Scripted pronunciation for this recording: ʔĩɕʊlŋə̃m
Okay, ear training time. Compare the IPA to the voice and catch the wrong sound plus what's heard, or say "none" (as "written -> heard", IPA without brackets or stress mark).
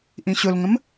none